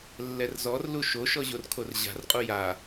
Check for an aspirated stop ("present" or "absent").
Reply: present